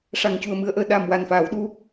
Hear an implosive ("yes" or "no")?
yes